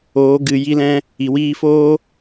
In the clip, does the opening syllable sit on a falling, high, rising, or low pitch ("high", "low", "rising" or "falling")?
rising